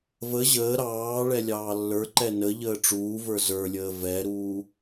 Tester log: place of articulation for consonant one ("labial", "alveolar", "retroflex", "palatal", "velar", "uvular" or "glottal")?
labial